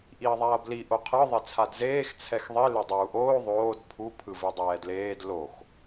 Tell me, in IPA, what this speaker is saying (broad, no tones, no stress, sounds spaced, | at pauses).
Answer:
ʔ i ɐ̯ ðˤ a ɐ̯ b l i ʔ o qʰ ɯ ðˤ e t͡sʰ a d z eː x t͡sʰ ɛ x ðˤ i l e dˤ uː ʔ oː ðˤ oː d pʰ u pʰ ɯ v i dˤ ɛː d l eː d l o x